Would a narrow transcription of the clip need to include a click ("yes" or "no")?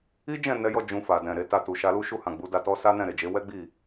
no